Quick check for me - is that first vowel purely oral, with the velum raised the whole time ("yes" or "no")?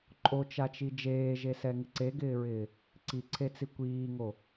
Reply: yes